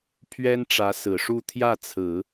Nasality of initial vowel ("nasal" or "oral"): oral